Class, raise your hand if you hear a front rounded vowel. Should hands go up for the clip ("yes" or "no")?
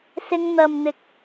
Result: no